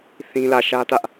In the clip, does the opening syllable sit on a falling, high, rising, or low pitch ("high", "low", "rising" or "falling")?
high